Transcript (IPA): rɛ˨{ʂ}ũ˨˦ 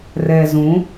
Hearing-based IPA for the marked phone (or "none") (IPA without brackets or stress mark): z